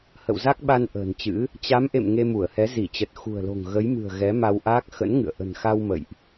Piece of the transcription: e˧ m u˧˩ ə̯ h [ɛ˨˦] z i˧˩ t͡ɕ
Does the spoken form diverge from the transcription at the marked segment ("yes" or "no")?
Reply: no